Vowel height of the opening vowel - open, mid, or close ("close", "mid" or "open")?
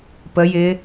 mid